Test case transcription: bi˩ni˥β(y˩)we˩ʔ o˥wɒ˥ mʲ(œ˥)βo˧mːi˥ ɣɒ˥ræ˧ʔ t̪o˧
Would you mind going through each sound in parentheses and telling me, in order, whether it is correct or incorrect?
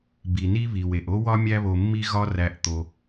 incorrect: i˩, incorrect: æ˥

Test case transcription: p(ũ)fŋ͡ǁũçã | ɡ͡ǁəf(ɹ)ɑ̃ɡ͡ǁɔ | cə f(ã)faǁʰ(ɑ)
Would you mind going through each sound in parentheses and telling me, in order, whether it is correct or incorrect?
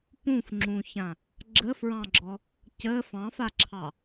correct, correct, incorrect: ɑ̃, correct

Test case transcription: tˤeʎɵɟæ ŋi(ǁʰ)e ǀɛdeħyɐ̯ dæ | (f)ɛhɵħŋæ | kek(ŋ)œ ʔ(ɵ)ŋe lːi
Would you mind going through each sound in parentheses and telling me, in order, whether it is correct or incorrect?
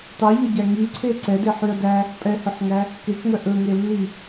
incorrect: ǀʰ, incorrect: pʼ, correct, correct

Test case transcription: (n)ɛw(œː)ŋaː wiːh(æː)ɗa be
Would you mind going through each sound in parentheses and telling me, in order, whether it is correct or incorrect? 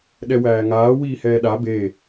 incorrect: ɗ, incorrect: æː, incorrect: ɛː

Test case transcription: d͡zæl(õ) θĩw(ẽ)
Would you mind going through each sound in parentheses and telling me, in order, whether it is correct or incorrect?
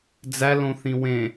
correct, correct

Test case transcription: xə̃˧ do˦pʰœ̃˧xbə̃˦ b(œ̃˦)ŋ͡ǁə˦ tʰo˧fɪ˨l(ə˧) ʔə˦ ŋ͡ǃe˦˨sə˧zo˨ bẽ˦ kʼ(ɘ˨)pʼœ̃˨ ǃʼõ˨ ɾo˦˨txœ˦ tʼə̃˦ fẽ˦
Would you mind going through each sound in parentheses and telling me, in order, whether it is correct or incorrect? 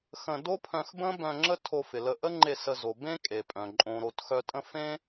incorrect: œ̃˧, correct, incorrect: e˨

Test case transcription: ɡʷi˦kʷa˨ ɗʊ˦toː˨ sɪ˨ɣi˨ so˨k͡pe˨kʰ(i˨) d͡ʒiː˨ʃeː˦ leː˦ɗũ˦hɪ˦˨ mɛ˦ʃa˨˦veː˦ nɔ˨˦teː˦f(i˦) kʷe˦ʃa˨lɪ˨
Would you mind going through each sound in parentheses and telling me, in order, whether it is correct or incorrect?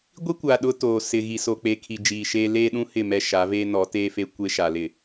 correct, incorrect: e˦

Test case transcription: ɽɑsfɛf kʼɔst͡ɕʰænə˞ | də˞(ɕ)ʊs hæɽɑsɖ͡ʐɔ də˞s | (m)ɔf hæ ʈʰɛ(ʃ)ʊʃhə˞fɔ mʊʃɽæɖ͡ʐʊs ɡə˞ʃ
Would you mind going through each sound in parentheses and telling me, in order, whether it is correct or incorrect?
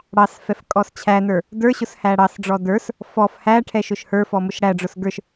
correct, incorrect: f, correct

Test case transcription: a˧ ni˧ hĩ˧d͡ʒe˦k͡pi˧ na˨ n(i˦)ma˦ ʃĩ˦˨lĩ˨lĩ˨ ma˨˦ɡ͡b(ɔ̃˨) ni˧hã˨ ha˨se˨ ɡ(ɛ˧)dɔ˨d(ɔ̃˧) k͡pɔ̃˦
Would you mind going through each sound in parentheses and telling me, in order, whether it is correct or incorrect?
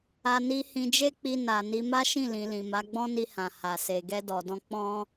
incorrect: i˧, incorrect: ɔ̃˦, correct, correct

